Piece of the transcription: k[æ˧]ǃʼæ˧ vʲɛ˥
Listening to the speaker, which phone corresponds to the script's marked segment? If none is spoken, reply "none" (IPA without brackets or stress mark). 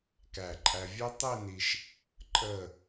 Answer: æ˧˩